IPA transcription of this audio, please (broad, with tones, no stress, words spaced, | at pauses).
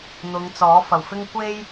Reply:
n̪ʊ˨˧ŋt͡sɔː˨˥fɐ˨˩wfɪ˥ŋ kʷe˥j